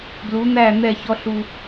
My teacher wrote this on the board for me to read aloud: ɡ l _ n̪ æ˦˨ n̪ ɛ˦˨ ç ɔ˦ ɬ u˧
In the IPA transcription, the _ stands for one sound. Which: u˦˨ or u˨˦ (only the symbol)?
u˨˦